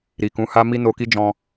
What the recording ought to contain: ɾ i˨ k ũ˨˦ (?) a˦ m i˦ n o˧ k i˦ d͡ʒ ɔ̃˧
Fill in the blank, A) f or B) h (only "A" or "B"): B